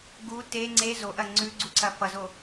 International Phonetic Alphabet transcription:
ɡu te ŋ͡ǀe zoʔɐ ŋ͡ǀʉɡ͡ǀuǀɐ fʌzo

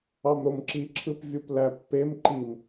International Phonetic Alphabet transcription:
ɑmɾomǁi ǁʰɯpvʲuplæpːem ǃim

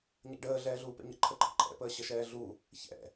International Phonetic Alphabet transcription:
ɲɛ̰ɖəː ɮɛːɮuːpɛ̰ɲə̰ ǃʰəǃʼəǃʼɛ̰ pəːɕəʃɛːɮu | çɛ̰

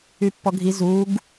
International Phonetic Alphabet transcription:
ypːɔɡʱi zuɡ

